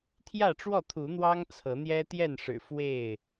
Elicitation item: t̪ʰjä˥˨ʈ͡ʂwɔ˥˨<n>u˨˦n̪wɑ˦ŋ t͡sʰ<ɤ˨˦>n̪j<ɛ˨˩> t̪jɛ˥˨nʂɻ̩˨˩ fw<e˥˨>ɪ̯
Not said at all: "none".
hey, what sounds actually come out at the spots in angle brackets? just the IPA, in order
t̪ʰ, ɤ˨˦, ɛ˦, e˥˨

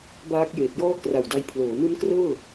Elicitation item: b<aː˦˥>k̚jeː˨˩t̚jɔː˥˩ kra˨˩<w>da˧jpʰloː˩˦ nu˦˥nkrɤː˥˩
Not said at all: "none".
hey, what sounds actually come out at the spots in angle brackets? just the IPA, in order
aː˦˥, w

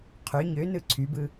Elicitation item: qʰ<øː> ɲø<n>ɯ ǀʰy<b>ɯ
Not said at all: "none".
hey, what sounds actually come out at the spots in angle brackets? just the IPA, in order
ø, n, b

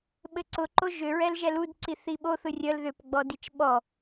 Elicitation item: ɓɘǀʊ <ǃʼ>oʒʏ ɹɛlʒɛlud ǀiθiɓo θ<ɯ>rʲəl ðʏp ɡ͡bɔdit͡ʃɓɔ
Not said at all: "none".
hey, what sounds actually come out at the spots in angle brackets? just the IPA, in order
ǃ, ɯ

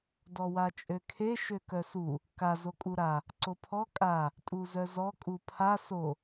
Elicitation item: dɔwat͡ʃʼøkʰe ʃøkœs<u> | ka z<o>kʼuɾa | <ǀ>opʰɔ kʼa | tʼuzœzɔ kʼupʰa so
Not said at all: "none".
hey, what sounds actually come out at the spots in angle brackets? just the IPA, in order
u, o, ǀ

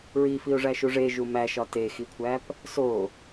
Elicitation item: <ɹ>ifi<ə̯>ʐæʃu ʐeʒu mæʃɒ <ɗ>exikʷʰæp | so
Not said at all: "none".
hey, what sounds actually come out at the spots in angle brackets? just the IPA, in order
ɹ, ʊ̯, t

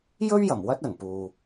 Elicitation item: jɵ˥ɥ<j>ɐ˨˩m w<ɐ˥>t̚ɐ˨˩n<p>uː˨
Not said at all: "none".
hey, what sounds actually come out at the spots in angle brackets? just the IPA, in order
j, ɐ˥, p

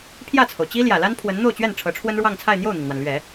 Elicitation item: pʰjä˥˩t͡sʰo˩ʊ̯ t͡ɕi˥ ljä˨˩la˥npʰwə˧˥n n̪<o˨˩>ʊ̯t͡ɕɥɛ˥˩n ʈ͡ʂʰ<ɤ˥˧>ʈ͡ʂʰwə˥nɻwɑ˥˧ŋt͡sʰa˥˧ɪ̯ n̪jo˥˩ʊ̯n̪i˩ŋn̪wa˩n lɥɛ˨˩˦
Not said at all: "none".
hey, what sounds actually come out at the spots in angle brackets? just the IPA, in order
o˥˧, ɤ˧˥

